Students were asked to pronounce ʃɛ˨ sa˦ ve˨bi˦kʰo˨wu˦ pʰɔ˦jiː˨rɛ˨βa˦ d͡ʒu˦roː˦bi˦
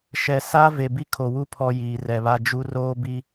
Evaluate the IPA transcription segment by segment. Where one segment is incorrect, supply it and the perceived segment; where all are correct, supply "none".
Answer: none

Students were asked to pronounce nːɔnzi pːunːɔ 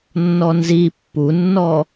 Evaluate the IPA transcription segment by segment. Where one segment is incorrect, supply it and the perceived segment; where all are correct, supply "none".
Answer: none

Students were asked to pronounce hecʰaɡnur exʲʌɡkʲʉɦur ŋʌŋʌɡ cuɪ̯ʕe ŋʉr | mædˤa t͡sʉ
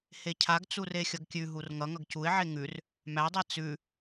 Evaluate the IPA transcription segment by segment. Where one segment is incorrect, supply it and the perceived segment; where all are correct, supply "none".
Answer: n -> t͡s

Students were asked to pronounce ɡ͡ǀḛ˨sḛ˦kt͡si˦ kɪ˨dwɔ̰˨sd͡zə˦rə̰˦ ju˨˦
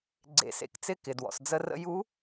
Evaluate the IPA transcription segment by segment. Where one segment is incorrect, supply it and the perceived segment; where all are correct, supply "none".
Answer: i˦ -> ɪ˦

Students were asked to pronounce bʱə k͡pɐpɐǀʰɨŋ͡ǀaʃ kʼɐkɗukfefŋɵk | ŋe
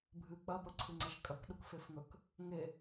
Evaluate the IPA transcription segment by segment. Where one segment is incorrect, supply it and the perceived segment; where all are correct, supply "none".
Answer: ə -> ɨ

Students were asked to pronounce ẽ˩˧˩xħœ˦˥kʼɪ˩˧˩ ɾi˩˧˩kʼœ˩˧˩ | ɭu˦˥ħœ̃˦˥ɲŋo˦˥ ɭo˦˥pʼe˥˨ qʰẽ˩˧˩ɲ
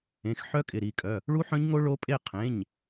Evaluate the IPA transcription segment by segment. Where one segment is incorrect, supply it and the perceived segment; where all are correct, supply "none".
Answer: none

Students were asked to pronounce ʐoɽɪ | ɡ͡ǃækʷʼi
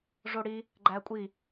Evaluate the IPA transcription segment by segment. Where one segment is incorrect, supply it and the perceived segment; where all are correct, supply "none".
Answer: ɪ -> i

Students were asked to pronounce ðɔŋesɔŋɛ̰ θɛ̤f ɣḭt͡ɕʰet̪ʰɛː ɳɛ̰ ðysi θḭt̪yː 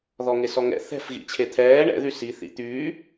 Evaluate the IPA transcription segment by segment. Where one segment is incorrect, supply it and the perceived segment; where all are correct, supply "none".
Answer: none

